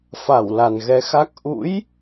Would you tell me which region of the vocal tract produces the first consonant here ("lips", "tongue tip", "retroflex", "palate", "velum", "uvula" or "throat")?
lips